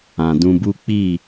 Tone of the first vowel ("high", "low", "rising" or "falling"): low